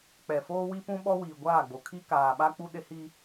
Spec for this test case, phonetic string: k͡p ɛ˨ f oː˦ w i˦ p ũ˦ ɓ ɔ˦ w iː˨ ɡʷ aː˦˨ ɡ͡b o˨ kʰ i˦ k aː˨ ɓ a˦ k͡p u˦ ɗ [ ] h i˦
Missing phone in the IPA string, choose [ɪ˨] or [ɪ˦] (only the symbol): ɪ˦